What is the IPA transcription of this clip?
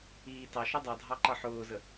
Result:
iː t ɑ ʃ ʊ dˤ ɑ dʱ ɑ ǃ ʌ ħ ʊː z ə

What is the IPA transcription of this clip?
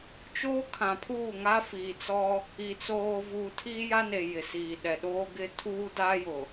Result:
t͡ʃ oː˦ kʰ ã˨ pʰ uː˦˨ ŋ a˦ f iː˨ t͡s ɔ˦ | i˨ t͡s oː˨ v uː˨ tʰ iː˦ j a˦ n e˨ j ɪ˨ s iː˨ ɗ ɛ˨ ɗ oː˦ ɡ ɪ˦ tʰ uː˦ d a˦ j ʊ˨

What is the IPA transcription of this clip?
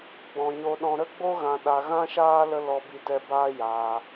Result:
ɡ͡b ɔ̃˧ ɲ o˦ ɗ ɔ̃˦ ɾ ə˦ ɡ͡b o˦ ɣ ã˧ ɗ a˧ ɣ ã˦ ʃ aː˦ l ə˧ l ɔ˧ b i˧ t ɛ˧ b aː˦ j aː˧

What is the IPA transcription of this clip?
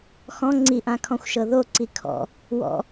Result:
x ɔ̃ ŋ͡ǀ i ʔ ã kʰ ɔ̃ xʷ ʃ ɤ ð o ǀ i kʰ ɔ̰ | w ɔ̰

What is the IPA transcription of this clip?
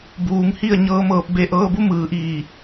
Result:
b uː˩˧ ŋ h i˥˨ ə̯ ɲ ɤː˧ m ɤː˧˩ p̚ b e˧ ʔ ɤː˧ b u˧˥ m ɯː˩˧ ʔ iː˧˩

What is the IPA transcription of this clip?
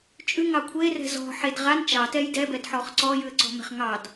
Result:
t͡ʃʼ ʉ ŋ ɑ kʷʰ e r ɛ̤ z ɔ̤ ħ e d ʁ a n t͡ʃ ɑ t ɛ j d ɛ b ɛ d ħ ɔ χ ǀ ɔ j ʉ ə̯ ǀ ɔ̤ m ɛ̤ χ ŋ ɑ d

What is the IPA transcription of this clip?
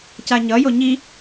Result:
c a ɲ ʌ j o ɲ i

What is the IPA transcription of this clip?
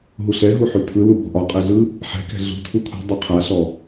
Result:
ɦ u ɬ ɛ ɦ u ħ ʉ tʰ ɯ l u b ɔ̤ ʔ ɒ qʼ ɛ ɮ ɯ | ħ ɛ̤ k ɛ̤ ɮ ṳ tʰ u kʰ ṳ dˤ ɛ qʰ a ɬ ɔ

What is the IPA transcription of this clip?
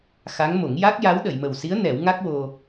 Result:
x a˧˥ ŋ m o˨˩˦ ŋ j a˦˥ k̚ j a˧˥ w ɗ ə˨˩˨ j m ə˨˩ w s i˧˥ ə̯ n ɛ˨˩˦ w ŋ a˦˥ k̚ w o˧

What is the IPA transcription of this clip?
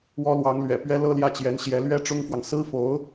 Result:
w ɔ˥ l w ɑ˧˥ ŋ l ɥ ɛ̰˨˩ p ɥ ɛ˥ l ɤ˥ l j ä˥˩ t͡ɕ j ɛ˧˥ n ɕ j ɛ˧˥ l ɥ ɛ˥ ʈ͡ʂ ʊ˥ ŋ f w ɑ˨ ŋ s ɹ̩˥ f o˧˥ ʊ̯

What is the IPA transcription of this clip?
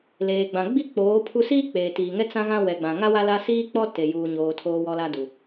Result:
l eː˨ ɡ͡b ã˨ ɡ͡b i˦ k͡p oː˨˦ pʰ u˦ s iː˦ k͡p eː˨ t iː˨ ŋ ɛ˦ t͡s ã˦ ɣ ã˦ w ɛ˨ ɡ͡b ã˨ ŋ a˦ w a˦ l a˦ s iː˦ k͡p ɔ˦ t e˨ j uː˨ ɲ oː˨ tʰ oː˨ w ɔ˨ l a˨ d u˨

